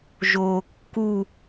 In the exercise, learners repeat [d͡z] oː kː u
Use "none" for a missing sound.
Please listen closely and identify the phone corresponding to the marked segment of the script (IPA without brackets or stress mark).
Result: ʒ